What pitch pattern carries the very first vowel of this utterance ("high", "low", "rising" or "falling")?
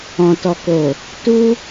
low